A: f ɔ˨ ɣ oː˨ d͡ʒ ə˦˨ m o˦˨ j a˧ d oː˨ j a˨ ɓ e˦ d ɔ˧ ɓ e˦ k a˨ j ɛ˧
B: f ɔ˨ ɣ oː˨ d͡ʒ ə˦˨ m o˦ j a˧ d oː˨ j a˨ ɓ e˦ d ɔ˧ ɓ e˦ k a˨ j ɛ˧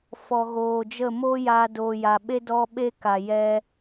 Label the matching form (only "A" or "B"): B